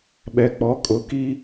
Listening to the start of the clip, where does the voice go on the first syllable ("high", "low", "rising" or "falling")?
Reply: low